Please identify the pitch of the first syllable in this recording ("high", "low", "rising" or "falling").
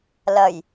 low